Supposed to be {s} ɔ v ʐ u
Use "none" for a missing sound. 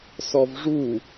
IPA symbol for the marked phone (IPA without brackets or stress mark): s